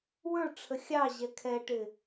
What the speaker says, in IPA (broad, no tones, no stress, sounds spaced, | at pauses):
w ə˞ ʈ͡ʂʰ ə xʲ ɑ ʑ ɛ kʰ ɛ ʈ ɪ